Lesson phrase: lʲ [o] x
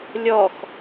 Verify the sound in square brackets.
incorrect: ɔ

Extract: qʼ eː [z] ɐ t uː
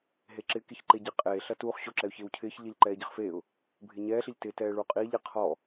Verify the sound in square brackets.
incorrect: ɬ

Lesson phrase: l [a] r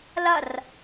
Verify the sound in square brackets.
incorrect: ɐ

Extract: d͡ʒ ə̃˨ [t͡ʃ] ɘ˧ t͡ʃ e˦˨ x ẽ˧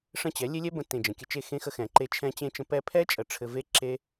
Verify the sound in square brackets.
incorrect: kʲ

